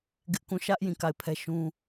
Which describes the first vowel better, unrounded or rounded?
unrounded